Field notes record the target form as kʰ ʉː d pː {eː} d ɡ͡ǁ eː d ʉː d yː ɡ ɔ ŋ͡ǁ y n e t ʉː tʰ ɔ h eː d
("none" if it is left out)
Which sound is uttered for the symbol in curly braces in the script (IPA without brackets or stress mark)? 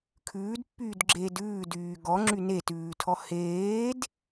yː